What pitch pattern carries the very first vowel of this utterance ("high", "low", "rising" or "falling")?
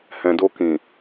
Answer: low